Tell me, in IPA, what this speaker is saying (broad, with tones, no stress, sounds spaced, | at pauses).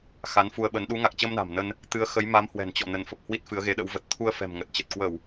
x a˨˦ n f u˧ ə̯ ɓ ə˨˦ n ɗ u˨˦ ŋ a˨˩ k̚ t͡ɕ ə˧ m n a̤˨˩ m n ə˧ n | t̪ ɨ˨˦ ə̯ x ə˨˦ j m a˨˦ m h w ɛ̤˨˩ n t͡ɕ ɔ̰˧˨ n ə˧˩ n f ə˨˩ p̚ h w i˦˥ t̚ f ɨ˨˦ ə̯ ɣ e˨˦ ɗ ə̰˧˥ w v ə˨˩ t̚ t̪ʰ u˧ ə̯ f ɛ̤˨˩ m ŋ ə˨˩ t̚ t͡ɕ ə˨˩ t̚ k w ə˧˩˨ w